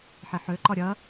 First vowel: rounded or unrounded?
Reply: unrounded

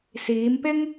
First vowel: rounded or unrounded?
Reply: unrounded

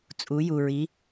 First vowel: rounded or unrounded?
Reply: rounded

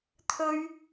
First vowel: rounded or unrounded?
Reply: rounded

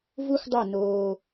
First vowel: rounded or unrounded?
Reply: rounded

